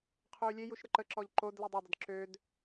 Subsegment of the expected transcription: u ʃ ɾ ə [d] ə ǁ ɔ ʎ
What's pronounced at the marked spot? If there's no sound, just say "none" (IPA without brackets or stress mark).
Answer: ǃ